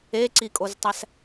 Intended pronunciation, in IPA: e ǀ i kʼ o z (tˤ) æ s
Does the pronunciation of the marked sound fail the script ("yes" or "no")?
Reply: no